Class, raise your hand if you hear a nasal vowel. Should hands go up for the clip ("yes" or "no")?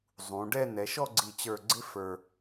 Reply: yes